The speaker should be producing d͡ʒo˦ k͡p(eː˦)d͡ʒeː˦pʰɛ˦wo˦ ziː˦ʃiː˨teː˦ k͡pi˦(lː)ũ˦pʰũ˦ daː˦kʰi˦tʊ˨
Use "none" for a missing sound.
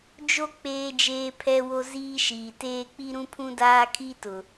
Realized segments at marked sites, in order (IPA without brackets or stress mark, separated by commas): eː˦, ɾ